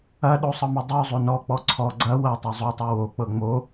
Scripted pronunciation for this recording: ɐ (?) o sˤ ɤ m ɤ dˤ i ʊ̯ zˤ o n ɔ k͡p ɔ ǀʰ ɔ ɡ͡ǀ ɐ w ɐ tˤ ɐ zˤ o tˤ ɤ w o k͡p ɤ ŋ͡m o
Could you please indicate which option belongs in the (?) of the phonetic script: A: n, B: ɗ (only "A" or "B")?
B